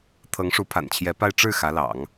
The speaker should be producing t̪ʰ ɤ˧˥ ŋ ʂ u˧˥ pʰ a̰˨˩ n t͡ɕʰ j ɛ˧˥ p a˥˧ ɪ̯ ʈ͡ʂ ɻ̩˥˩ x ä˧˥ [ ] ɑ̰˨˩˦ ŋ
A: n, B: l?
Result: B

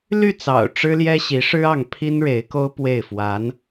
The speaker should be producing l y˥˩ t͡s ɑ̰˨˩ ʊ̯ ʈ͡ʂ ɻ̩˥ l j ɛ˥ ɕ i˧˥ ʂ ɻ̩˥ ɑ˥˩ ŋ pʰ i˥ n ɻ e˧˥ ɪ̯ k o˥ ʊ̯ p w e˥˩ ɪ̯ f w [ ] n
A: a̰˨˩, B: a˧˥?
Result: B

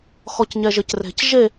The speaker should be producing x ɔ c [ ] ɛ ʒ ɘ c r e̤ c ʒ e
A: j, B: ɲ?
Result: B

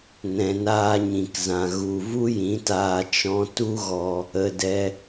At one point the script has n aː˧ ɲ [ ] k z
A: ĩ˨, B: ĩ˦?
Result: A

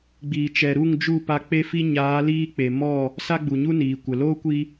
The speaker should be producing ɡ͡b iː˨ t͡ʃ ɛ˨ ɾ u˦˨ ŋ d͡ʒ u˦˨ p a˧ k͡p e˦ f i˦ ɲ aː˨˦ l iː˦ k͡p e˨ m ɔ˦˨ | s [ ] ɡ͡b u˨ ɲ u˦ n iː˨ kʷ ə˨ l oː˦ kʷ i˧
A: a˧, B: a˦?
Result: B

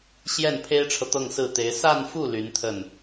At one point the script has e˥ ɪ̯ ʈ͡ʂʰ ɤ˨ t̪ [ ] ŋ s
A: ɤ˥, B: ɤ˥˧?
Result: B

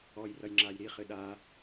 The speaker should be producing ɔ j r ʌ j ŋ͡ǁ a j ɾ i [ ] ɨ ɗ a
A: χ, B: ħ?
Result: A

